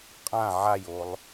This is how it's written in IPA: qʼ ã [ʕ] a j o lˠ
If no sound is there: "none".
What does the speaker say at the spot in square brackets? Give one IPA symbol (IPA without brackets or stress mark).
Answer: ʕ